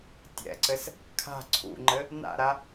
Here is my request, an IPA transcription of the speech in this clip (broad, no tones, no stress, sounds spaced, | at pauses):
tʲ ɛ̰ ǀ ɘ s | kʰ a̤ ǀʰ ṵ ŋ͡ǃ ɘ | n a̰ ɾ a